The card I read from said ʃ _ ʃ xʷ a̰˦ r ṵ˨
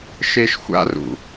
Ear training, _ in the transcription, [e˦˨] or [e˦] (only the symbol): e˦